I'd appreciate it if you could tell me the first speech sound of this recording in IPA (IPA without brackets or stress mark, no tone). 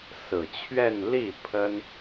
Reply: s